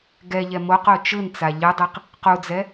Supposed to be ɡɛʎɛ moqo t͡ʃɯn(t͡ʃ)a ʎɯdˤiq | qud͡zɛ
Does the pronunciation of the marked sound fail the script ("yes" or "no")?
yes